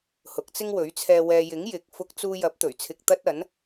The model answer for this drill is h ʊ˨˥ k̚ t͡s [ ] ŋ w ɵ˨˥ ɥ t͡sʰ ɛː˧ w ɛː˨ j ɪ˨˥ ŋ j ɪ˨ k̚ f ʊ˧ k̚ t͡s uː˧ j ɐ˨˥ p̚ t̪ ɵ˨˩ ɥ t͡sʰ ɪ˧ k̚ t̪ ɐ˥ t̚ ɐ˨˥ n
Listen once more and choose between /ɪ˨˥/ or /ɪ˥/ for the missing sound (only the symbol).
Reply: ɪ˥